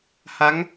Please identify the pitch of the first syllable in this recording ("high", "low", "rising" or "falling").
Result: rising